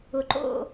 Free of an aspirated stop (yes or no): yes